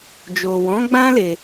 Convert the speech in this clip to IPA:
d͡ʒ o˨ w ɔ̃˨˦ ɡ͡b ã˦ l e˧

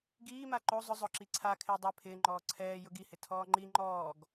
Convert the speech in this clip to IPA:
ɡ iː m a ǃ o zˤ ʊ zˤ ʊ ǁ i ǀʰ a kʰ ɪː dˤ ɛ pʰ ɪː ŋ͡ǃ ɔː ǀʰ ɛː j ʊ ɡ i h ɪ tʰ ɔː ŋ͡ǃ i ŋ͡ǃ ɔː ɡ

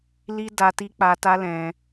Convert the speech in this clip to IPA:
l i˦ d a˧ t i˦ k͡p a˧ t a˦ l ɛ̃˧

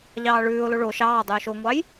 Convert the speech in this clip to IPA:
ʎ ɑː ɭ ʉː ʊ̯ l o ɭ o ʃ ɑː dˤ ʉː ʃ o ŋʷ ɑ j

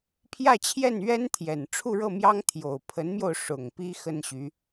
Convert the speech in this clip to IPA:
pʰ j ä˥˧ t͡ɕʰ j ɛ˥˩ n ɥ ɛ˥ n t̪ʰ j ɛ˨˩ n ʈ͡ʂʰ u˥˧ ɻ ɤ˥˩ m j ɑ˥ ŋ t̪ʰ j o˨˩ ʊ̯ pʰ ə˧˥ n m j o˧ ʊ̯ ʂ ʊ˨˩ ŋ p i˥ x ə˥ n ɕ y˧˥

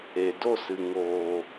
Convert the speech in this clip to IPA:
e˨ d o˦˨ s ɨ˨ ŋ oː˨

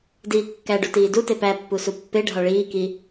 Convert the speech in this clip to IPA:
d iː kː æ ɖ u t iː d u t e p æ pː u s u pː e ɖʱ ɒ ɭ iː k i

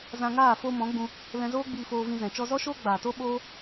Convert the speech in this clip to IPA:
z ã˧ ŋ aː˦˨ f o˧ m ɔ̃˨˦ ɡ͡b ũ˧ | l ɛ̃˧ z oː˦ ɡ͡b iː˧ f oː˧ v ĩ˧ z ɛ̃˨ t͡ʃ ɔ˧ z ɔ˦ ʃ oː˦ ɡ͡b aː˨ t o˦ ɓ oː˦

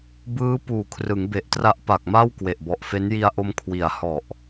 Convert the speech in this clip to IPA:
b ɯː˦˥ p uː˨˩ kʰ r ɯ˩˦ ŋ b e˨˩ ʔ t r a˦˥ ʔ p a˨˩ k̚ m a˥˩ w k w e˨˩ ʔ b ɔ˨˩ ʔ f e˦˥ n j i˧ a̯ ʔ o˧ m kʰ w i˨˩ a̯ h ɔ˨˩ ʔ

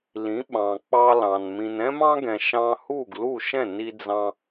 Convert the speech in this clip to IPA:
l ĩ˩˥ ɓ ɑ̃˩ k͡p ɑ˧ l ɑ̃˩ n m ĩ˩ n ɛ̃˥ m ɑ̃˥ ɡ ɛ̃˩ ʃ ɑ̃˧ h u˥˩ ɡ l u˥˩ ʃ ɛ̃˥˩ n i˧ d͡z ɑ̃˧

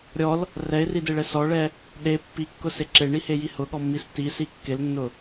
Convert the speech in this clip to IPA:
ɾʲ ɔ l | r ɛ ɪ̯ r i d e ɭ ɛ s ɔ ɭ ɛ | ɗ e pː i kː ʊ s e ǁ e ɳ i h e j i h ʊ ɠ ɔ mː i s t i s i kː ɪ l nː ʊ

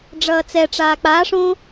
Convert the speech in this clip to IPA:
ɖ͡ʐ ʌː t͡s ɛ ʈ͡ʂ aː k͡p a ʂ õ

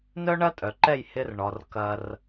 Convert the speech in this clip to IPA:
n œ˦ ɳ ɐ˦ tʼ œ˨ ǃ ɛ˦˨ j h ɪ˦ r ɳ ɔ˨ r k ɐ˨ r

